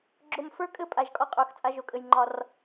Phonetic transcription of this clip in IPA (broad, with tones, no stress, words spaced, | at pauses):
ɡ͡ǁo˨mfə˞˦kʼɘ˦ pʼa˨ʒkʼɒ˦qʼə˞˨xt͡sʼa˦ ʒo˨kʼɘ˨jŋ͡ǃɒ˦r